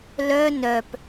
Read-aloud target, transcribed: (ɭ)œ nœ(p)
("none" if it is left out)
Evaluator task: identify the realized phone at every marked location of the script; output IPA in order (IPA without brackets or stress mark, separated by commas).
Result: l, p